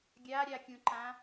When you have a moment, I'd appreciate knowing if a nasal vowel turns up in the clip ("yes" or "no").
yes